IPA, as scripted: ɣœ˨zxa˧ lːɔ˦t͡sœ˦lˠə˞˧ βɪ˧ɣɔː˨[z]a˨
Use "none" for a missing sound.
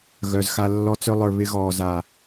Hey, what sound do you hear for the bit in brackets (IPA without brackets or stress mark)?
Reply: z